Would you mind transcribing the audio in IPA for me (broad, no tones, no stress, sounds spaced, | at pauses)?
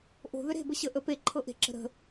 ʔ o̤ ð ʏ ɾ e̤ b ə ɕ ə ʔ ə p e ǃʰ ɤ ʔ e̤ ǁ ə̤ ɾ ə̤